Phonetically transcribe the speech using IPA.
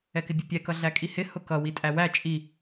ɛ k ɪ bʲ ə pʲ ɛ k ʌ ɮ æ kʼ i h ɪ h ʊ k ʌ w i tʼ æ w æ t͡ʃʼ i

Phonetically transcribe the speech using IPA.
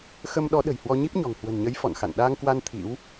x ə˧ m ɗ ɔ˨˦ ɗ ə̤˨˩ j h w ɔ˧ ɲ i˦˥ p̚ ɲ ɔ̤˨˩ ŋ h w ə̤˨˩ n ɲ ə˨˦ j f ɔ̰˧˨ n x a̰˧˨ n ɗ aː˧ ŋ k w a˧ n t̪ʰ ḭ˧˥ w

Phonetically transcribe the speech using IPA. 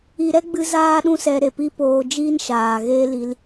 i˧ ɾ ɛ˦ ɡ͡b ɨ˦ z aː˦ ɗ ũ˦ s ɛ˧ ɾ e˨ p i˦ p oː˧ d͡ʒ iː˦ n ʃ aː˨ ɣ eː˦ l i˧ l

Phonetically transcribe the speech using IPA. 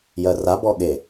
j ɜ r a b ɔ ɠ e

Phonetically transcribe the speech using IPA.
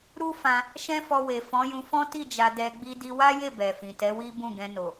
ɾ u˦ f ã˧ | ʃ ɛ̃˦ f ɔ˧ w e˨ f ɔ̃˨˦ j ũ˧ f ɔ̃˦ t i˦˨ d͡ʒ a˧ d ɛ˧ ɡ͡b i˦ d i˦ w a˦ j e˦˨ b ɛ˨ f ĩ˨ t ɛ˨˦ w i˦ b ũ˦˨ ɡ ɛ̃˧ n o˨

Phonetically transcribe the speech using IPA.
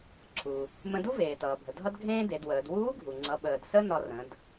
ǀʰ u˩ | m ə̃˧ d u˥ v eː˩ t ʌː˩ bʱ ə˩ dʱ ʌ˥ d ɡʱ ẽː˥ d e˩˧ d w əː˩˧ d w uː˧˥ ɡʱ u˩ ŋ͡ǀ ʌ˩˧ ɓ əː˩ d s ə˥ n ɒ˧ r ə̃˩˧ d

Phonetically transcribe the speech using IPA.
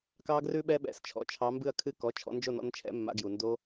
k ɑ˦˥ ɡ r ʉ˦˥ ɓ ɛ˦˥ ɓ ɛ̰˩ s t͡ʃʰ ɔ̰˩ t͡ʃʰ ɑ˨˦ m b ɨ˦˨ ɐ̯ kʰ ɨ˦˥ k ɔ˩˧˩ t͡ʃʰ ɔ̰˨˦ n d͡ʒ o˦˨ n ɔ̰˨˦ n t͡ʃʰ ɛ̰˨˩˦ mː a̰˨˦ ɡ j u˩ n d o˦˥

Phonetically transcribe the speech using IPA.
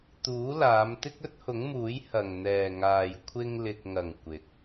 t̪ uː˨˥ l aː˨˧ m t̪ ɪ˥ k̚ ɵ˥ t̚ h ʊ˨˥ ŋ m uː˨˥ j h ɐ˨˩ ŋ n̪ ɛː˨˩ ŋ aː˨˩ j kʷʰ ɪ˧ ŋ l ɪ˨ k̚ ŋ ɐ˨˩ ŋ kʷ ɪ˨˥ k̚

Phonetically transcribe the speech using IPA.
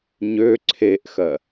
ɲ ø ǀʰ e ʔ x ɜ

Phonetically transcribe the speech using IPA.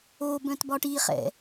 o b œ̃ t b ɒ ʈ i χ ɛ̰

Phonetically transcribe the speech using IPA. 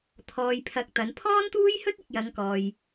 t̪ʰ ɔː˧ j pʰ ɐ˧ k̚ t̪ ɐ˨˧ n pʰ ɔː˥ n t̪ uː˥ j h ɵ˥ t̚ ɪ˨ k̚ j ɐ˨˧ ŋ k ɔː˨ j

